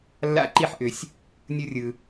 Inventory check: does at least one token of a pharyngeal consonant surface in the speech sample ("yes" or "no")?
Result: yes